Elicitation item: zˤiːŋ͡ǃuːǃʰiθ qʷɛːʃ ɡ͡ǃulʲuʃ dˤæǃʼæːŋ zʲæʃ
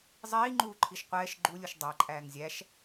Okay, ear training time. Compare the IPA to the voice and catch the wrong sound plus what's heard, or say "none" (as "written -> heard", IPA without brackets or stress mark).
θ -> ʃ